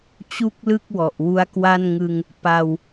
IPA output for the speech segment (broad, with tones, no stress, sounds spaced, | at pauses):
t͡ɕ u˥˩ k̚ l ɯ˥˩ k̚ w ɔ˨˩ ʔ w u˦˥ a̯ k w a˥˩ n ŋ ɯ˧ ŋ | p a˧ w